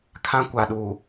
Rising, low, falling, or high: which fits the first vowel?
high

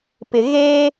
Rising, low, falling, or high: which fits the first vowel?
low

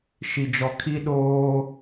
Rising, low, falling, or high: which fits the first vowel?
low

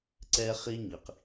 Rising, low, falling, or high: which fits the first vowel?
high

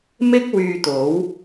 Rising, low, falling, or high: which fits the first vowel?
high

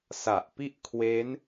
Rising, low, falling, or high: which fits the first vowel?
low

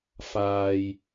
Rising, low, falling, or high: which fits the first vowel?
low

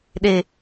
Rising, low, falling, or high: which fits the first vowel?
low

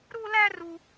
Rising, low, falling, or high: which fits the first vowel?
high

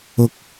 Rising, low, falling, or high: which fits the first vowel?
low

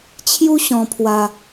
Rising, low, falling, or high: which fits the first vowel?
high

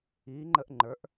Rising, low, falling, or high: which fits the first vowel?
rising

